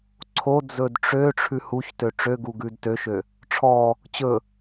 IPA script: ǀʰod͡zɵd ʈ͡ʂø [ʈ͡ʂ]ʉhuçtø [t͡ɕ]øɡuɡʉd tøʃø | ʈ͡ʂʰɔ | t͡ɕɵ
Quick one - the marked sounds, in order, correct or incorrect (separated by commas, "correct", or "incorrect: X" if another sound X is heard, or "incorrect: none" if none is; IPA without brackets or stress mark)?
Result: incorrect: ʈ͡ʂʰ, incorrect: ʈ͡ʂ